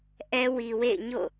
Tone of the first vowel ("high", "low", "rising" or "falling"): high